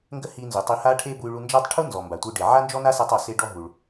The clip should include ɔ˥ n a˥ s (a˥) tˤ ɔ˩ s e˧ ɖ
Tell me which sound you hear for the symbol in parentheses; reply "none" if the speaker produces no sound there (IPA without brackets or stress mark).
a˧